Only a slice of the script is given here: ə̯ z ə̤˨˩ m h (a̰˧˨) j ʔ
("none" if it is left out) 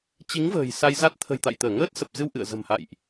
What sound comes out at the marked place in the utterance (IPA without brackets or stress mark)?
a̰˧˨